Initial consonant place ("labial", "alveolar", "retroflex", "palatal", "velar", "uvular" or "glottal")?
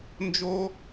alveolar